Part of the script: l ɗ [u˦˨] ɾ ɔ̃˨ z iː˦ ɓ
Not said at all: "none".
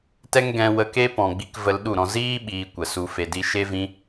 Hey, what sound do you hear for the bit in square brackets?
u˦˨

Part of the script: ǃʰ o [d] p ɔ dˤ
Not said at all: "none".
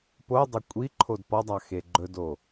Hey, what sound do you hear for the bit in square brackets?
d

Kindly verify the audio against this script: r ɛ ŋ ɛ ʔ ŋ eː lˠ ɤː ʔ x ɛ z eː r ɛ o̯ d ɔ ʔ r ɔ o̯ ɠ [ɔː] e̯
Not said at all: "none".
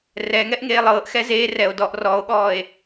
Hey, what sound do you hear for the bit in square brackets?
ɔː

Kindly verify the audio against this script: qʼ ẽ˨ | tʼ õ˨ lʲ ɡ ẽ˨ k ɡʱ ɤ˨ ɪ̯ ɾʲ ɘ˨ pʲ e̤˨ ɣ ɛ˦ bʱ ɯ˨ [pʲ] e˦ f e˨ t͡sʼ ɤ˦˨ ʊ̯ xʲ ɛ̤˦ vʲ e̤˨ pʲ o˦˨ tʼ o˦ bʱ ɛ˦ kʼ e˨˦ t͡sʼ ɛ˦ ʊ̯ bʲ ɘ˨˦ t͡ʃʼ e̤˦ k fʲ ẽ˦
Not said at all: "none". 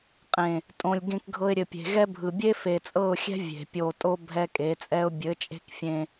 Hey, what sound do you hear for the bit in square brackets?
bʲ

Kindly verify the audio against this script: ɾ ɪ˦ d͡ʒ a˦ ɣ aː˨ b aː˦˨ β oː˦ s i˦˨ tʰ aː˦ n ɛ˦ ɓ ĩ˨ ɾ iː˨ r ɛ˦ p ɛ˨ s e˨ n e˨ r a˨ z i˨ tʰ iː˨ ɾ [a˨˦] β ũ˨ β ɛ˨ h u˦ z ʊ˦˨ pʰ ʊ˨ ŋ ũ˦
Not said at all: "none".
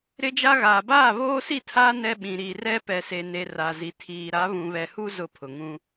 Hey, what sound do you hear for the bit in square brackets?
a˨˦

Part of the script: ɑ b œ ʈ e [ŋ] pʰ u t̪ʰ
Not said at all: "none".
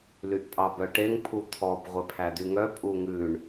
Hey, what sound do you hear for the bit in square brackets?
ŋ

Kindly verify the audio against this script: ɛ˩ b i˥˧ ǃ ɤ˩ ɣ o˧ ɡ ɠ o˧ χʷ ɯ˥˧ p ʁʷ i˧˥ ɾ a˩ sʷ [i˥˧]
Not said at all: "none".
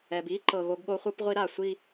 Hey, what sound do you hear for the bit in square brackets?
i˥˧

